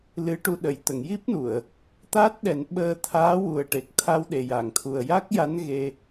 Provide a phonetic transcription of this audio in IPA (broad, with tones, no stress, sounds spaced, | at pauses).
l ɨ˧˥ ʈ u˧ ɗ ə˨˩˨ j t̪ ə˨˩˨ ŋ j i˦˥ p̚ n u˨˩˨ ə̯ | t̪ aː˦˥ t̚ ɗ ɛ˨˩˦ n ɓ əː˧ t̪ʰ aː˧˥ w u˨˩ ə̯ ʈ e˨˩ k̚ t̪ʰ a˧ w ɗ e˨˩ j a˨˩˨ ŋ t̪ʰ u˨˩ ə̯ j a˦˥ k̚ j a˧˥ n ɣ e˧